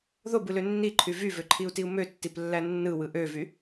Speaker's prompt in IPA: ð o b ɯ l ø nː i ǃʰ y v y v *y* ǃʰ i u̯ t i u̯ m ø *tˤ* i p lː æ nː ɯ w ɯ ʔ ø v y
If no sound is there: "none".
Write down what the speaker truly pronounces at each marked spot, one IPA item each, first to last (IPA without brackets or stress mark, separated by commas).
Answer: ø, tː